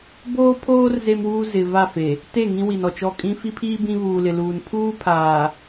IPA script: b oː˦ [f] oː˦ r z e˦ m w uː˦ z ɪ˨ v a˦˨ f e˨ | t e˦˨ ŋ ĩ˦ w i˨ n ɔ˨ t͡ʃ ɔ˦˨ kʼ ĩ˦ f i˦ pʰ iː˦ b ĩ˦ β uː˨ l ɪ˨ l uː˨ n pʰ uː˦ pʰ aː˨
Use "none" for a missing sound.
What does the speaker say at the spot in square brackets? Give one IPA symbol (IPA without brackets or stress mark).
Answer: pʰ